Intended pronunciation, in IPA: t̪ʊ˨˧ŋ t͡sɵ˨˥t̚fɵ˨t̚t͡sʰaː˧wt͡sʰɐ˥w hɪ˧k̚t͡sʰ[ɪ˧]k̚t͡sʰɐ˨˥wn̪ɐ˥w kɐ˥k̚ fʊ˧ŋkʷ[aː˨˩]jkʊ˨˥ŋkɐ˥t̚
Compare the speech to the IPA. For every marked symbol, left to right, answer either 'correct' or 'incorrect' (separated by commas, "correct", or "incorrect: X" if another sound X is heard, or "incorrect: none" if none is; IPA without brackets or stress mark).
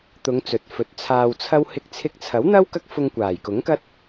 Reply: correct, correct